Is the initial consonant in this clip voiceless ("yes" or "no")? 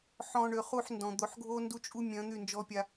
yes